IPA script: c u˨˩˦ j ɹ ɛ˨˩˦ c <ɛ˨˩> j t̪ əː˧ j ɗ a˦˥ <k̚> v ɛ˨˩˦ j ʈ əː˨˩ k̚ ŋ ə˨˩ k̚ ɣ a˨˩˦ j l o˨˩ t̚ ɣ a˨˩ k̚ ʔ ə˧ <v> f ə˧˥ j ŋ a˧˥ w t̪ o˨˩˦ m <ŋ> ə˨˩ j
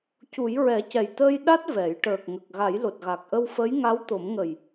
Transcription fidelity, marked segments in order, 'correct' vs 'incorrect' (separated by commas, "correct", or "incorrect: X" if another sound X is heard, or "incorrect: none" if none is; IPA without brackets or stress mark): correct, incorrect: t̚, incorrect: w, correct